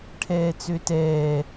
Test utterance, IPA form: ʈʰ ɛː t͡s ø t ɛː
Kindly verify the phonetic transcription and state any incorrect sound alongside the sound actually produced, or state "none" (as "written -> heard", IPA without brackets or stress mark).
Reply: none